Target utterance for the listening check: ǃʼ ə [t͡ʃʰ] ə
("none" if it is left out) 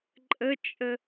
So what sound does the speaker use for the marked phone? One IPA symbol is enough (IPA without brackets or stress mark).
t͡ʃʼ